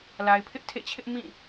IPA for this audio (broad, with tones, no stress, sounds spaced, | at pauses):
l a˨ ɪ̯ pʰ ɪ˦ ʔ tʰ ḛ˦˨ t͡ɕʰ ɪ˦ ʔ m ĩ˦˨